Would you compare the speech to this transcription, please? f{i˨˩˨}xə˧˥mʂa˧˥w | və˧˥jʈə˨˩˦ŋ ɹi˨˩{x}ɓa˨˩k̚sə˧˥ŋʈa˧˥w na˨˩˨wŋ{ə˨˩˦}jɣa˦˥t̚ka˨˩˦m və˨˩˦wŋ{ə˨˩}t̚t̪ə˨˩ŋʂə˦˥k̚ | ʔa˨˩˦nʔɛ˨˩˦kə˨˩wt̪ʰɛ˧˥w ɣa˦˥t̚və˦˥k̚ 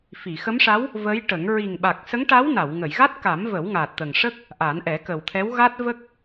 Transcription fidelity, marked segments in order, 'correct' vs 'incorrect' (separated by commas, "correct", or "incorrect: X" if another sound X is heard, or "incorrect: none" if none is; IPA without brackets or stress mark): correct, incorrect: ŋ, incorrect: ə˨˩˨, incorrect: a˨˩